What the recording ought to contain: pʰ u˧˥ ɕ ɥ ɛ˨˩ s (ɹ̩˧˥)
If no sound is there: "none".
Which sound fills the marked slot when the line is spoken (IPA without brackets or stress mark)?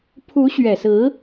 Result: ɹ̩˧˥